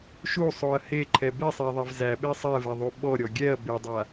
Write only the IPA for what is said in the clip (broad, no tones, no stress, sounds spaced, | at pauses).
ʃ u sˤ o ɐ̯ h e ǃʰ ɛ b e sˤ æ ðˤ ɛ v z æ ɓ e sˤ ɛ v ɛ ðˤ u ɓ ɔ ɾʲ ɔ ɡʲ ɛ ɐ̯ b e dˤ a